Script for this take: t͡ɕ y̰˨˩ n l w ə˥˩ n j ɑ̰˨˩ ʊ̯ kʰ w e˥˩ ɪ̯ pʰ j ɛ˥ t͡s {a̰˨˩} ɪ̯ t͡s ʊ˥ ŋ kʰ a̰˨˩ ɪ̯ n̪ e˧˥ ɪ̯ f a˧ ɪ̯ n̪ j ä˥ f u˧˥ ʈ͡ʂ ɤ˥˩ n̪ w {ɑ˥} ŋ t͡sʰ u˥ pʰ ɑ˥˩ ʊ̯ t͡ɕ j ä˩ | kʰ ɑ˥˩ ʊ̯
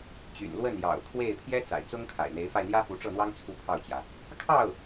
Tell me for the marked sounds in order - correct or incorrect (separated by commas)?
correct, correct